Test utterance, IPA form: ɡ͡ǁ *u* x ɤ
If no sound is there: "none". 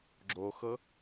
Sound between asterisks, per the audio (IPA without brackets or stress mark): o